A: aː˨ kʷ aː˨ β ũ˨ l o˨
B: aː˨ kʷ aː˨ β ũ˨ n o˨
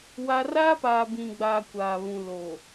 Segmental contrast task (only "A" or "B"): A